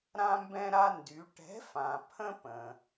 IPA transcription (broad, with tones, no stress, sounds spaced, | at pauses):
ɾ ã˥ m b ɛ̃˥ ɾ a˥ n d y˨˥ ʈ ɛ̤˨˥ f ã˩ pʰ ə̃˥ p ə̃˩